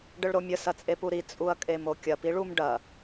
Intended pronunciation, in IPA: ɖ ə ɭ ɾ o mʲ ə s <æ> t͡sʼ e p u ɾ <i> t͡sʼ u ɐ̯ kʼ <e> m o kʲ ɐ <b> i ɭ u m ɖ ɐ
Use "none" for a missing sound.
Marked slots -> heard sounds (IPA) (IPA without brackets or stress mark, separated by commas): ɐ, i, e, p